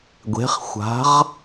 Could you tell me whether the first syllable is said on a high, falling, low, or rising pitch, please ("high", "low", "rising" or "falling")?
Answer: rising